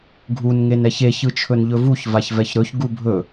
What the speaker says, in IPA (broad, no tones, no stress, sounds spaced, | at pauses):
ɡʱ u n ŋ e n ɛ ç e ç ɯ t͡ʃʰ ɵ n ʎ ɵ v u ç v a ç v ɛ ç ɾ ɵ ç ɡ u bʱ ɵ